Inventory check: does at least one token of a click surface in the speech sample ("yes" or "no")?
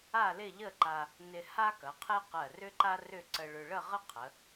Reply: yes